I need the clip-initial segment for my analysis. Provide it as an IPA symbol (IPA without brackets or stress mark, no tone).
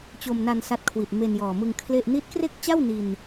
t͡ɕ